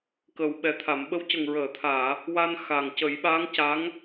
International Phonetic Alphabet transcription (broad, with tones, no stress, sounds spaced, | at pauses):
k ə˨˩ w ɓ ɛ˨˩ t̪ʰ a˨˩˨ m ɓ ə˧˥ w c ə˨˩ ŋ ɹ əː˨˩˨ t̪ʰ aː˨˩˨ | w a˧ n x a˨˩ ŋ c ə˨˩˦ j ɓ a˧˥ ŋ c a˧˥ ŋ